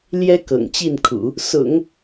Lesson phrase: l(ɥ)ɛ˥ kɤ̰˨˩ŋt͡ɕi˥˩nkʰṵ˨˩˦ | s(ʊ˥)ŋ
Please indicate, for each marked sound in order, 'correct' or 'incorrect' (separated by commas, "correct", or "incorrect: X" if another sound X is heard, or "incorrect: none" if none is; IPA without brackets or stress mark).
incorrect: j, incorrect: ʊ̰˨˩˦